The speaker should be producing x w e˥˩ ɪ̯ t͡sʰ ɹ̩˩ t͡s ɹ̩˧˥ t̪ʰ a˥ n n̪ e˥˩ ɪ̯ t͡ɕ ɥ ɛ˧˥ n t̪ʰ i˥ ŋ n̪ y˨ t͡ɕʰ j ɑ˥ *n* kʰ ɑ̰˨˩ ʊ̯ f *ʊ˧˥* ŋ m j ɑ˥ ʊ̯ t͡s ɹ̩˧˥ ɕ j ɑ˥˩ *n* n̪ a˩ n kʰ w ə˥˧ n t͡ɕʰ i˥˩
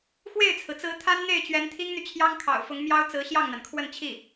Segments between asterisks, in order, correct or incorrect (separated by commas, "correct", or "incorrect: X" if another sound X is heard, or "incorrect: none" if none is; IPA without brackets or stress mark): incorrect: ŋ, correct, incorrect: ŋ